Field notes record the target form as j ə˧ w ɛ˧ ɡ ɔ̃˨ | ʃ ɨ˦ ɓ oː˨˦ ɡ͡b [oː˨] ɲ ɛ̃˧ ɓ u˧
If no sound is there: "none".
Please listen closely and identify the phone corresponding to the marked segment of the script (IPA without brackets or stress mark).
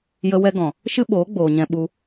oː˨